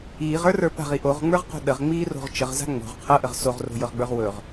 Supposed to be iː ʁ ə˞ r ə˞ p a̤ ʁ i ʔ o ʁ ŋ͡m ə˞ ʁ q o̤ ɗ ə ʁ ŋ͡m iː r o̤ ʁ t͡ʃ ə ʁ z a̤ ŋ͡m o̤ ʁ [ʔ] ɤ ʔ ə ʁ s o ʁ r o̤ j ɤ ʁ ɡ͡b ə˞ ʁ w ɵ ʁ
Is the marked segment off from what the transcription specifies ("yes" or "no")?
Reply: yes